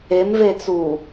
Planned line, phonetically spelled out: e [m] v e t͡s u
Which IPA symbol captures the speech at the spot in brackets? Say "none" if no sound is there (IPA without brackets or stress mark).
m